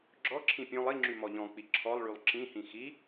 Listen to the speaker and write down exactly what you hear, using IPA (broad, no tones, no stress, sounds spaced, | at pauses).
ɡ͡ǁ ɔ ǁʰ ĩ pʲ õ lˠ i ŋ͡ǁ y m ɔ ʎ ɔ̃ k͡p i ǁʰ ɔ lˠ ɭ y lˠ ǁ ĩ h ĩ x i